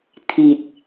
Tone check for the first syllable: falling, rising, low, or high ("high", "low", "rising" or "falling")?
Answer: low